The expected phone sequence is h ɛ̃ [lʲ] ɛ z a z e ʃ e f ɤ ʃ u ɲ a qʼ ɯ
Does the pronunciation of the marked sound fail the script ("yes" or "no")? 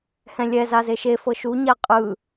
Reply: no